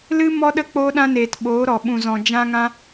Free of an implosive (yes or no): no